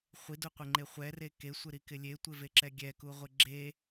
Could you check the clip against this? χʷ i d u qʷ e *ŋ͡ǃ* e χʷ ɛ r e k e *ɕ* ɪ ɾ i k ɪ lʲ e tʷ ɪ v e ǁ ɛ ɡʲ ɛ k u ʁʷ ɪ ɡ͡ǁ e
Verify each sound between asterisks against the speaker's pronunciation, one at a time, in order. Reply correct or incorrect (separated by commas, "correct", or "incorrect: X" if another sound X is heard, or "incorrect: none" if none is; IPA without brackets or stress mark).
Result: correct, incorrect: sʷ